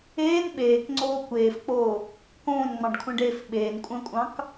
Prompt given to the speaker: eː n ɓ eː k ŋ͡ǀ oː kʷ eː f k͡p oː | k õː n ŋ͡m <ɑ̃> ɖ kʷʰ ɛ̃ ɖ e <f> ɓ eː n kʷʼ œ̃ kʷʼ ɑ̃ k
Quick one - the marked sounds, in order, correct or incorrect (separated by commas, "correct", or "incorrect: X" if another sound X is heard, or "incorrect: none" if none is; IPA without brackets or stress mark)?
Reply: correct, correct